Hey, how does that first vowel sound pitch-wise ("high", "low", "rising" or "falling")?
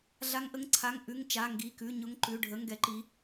rising